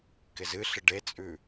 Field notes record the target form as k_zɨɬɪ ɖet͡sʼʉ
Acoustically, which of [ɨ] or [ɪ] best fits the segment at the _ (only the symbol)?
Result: ɪ